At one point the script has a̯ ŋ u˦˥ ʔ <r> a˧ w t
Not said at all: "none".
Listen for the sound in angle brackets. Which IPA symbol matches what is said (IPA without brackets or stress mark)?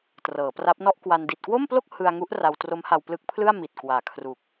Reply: r